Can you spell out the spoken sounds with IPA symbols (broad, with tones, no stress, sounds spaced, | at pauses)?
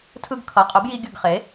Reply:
tʰ ɯ˧ ɡ kʰ ʌ˩˧˩ qʼ ɯ˩˥ b j i˧ ɡʲ ɯ˧˩ ɡ χ e˩˥